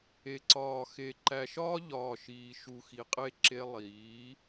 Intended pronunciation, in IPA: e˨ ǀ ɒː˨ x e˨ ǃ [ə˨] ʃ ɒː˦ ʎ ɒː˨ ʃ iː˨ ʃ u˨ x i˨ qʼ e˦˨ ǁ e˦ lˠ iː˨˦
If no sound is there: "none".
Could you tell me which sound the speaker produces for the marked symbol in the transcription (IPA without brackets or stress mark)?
æ˨